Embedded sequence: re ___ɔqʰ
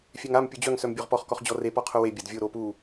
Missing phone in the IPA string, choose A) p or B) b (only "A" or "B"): A